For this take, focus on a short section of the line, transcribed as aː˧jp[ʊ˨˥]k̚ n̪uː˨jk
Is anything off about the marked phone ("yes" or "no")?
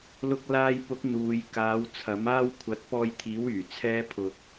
no